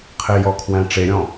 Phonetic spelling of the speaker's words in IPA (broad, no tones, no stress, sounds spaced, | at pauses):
qʰ ɪ j ɔ kʰ w æ̃ ʈ͡ʂ e ɾʲ ɔ̃